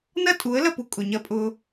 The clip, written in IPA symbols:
n ɐ˦ tʼ u˨˦ ə̯ l ɐ˦˨ p u˨ kʼ ʊ˨ ɲ ɐ˧ pʼ ʊ˧

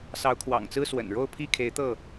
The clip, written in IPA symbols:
s ɑ˨˦ ʊ̯ kʰ w ɑ̰˨˩ ŋ t͡s ɹ̩˦ s w ə̰˨˩ n ɻ o˥˨ ʊ̯ pʰ i˥˨ kʰ e˨˦ ɪ̯ t̪ ɤ˥˨

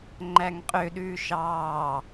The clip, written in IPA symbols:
ŋ͡ǃ æ ŋ qʼ ø ɗ ʉː ʃ ɑː

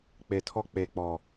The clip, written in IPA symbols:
k͡p e˨ tʰ ɔ˦ k͡p e˨ k͡p ɔ˨

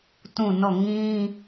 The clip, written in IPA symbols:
t ũ˦˨ n ɔ˦˨ ŋ ĩ˦

